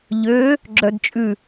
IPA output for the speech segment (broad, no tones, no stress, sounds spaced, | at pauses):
ʎ ø | ɡ͡ǁ œ d t͡ʃʼ ʉ